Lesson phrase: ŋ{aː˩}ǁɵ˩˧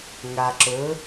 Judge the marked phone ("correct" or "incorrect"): incorrect